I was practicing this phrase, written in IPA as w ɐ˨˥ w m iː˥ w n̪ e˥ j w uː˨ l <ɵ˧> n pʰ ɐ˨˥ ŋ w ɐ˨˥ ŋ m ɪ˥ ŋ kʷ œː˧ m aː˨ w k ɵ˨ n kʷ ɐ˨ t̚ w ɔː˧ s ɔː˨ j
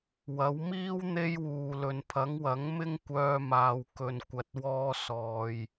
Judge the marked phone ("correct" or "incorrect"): incorrect